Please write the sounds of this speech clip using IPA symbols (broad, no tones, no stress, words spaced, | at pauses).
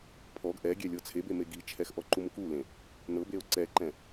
pʰɔɡ ʔɛɡʲɛ lʲɤt͡sʰebe meɡit͡ʃʰɛx ʔɔǃumkulẽ | nɤbeo̯ ǀɛǃɛ̃